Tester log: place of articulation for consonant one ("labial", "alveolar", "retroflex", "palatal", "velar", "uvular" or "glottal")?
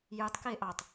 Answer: palatal